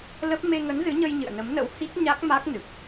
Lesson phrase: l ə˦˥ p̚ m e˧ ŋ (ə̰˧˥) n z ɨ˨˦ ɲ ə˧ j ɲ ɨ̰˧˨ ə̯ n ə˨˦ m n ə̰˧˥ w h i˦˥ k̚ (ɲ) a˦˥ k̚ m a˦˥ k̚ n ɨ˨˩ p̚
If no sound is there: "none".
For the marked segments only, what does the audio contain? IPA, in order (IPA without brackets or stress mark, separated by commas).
ə˨˦, ɲ